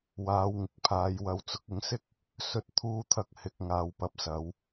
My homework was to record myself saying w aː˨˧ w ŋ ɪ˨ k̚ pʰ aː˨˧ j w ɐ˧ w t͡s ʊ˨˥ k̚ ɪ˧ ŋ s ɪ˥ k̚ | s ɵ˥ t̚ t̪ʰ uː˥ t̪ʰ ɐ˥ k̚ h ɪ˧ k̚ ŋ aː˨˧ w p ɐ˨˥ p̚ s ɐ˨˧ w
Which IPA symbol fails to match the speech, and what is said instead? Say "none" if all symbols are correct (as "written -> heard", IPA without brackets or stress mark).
none